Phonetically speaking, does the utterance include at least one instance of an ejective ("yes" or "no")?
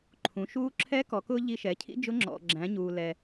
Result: no